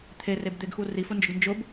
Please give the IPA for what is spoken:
t̪ʰ e r e b d̪ e ɡ x u r i f ʊ n d͡ʒ ʊ ɡ n d͡ʒ ʊ b

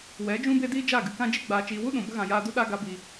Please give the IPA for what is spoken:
w ɛ˨˦ d͡ʒ ũ˦ b e˦ d iː˦ d͡ʒ a˦˨ ɡ ɨ˨ k ã˦ d͡ʒ e˦ ɡ͡b aː˨ t͡ʃ iː˨ w u˦ ɗ ũ˨ b ə˦ ɣ ã˨ j aː˧ d u˦ ɗ a˦ ɡ a˧ b iː˨

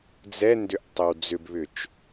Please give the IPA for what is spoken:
d͡z ɛ n d ʏ ʔ tˤ ø w d͡z ʏ b β ʏ t͡ʃ

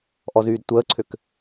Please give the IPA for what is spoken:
ʔ ɔ z yː d tʷ əː ǀʰ ʏ k

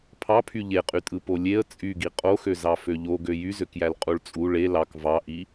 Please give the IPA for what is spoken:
pʰ ɑ pʰ y ʎ e qʼ y tʼ ɯ p o lʲ e ə̯ t͡sʼ y ɡ i qʼ o x ø z ɑ f ø ʎ o ɡ ø j y z ø k j æ l qʼ u ɭ t͡sʼ u ɭ e l ɑ k v ɑ ʔ i

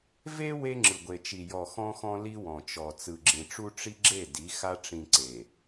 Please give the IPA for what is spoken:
v e˦ w e˦ ŋ͡ǁ ɯ˨ ɡʷ e˨ t͡ʃ i˨ j ɔ˨ x ɔ̃˦ x ɔ̃˦ l i˦ w ɔ̃˨ t͡ʃ ɔ˨ t͡s ɯ˨ ɡ͡ǁ ĩ˨ ʈ͡ʂ u˦ ʈ͡ʂ i˦ ɡ͡ǁ e˦˨ d i˨˦ x a˦ ʈ͡ʂ ĩ˨ ǀ e˨

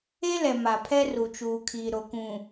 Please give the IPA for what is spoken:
e˦ l ɛ˨ m a˨ pʰ ɛ˦ r u˨ t͡ʃ uː˨ kʰ iː˨ ɾ o˨ k ũ˨

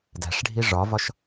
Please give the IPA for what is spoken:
d æ̤ ʂ ɖʱ i ʐ ɒ v ɒ ʃ

